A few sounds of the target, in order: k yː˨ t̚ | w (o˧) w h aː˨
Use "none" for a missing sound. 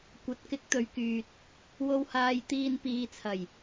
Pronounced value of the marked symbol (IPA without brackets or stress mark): o˨